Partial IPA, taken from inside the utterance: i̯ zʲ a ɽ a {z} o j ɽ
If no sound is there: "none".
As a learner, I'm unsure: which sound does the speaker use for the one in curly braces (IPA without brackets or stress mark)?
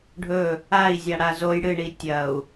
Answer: z